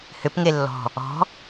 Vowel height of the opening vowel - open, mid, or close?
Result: close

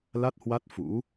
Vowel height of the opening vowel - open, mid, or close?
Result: open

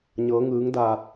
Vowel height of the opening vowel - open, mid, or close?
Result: mid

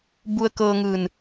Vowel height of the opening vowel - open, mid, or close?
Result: close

